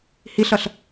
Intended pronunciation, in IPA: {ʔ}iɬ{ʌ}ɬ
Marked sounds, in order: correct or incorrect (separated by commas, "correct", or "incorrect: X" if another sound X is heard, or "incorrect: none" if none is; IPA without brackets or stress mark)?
incorrect: h, correct